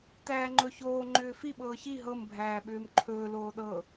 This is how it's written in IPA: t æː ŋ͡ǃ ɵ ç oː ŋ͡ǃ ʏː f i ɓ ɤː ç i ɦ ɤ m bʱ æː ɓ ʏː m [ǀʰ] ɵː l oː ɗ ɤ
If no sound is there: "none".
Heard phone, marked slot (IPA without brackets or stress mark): ǃʰ